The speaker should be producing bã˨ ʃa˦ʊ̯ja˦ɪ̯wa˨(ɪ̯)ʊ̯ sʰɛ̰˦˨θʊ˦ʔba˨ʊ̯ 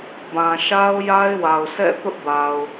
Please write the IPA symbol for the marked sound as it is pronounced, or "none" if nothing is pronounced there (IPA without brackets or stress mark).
none